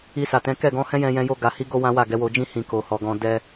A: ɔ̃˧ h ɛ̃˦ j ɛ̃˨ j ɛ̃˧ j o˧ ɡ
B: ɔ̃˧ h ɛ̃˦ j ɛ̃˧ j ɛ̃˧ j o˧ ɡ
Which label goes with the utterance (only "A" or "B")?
B